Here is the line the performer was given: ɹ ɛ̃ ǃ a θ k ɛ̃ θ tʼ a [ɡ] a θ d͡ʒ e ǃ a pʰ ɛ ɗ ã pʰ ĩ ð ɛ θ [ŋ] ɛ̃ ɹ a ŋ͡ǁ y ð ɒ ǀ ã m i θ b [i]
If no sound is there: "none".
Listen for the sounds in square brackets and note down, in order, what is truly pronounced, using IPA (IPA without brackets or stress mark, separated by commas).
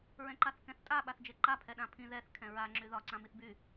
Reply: ɓ, kʰ, y